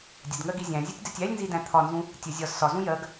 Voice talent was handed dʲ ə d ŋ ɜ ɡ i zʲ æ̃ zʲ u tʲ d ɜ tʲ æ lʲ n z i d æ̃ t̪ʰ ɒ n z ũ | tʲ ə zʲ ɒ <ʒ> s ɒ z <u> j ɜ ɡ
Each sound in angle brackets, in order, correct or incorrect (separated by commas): incorrect, incorrect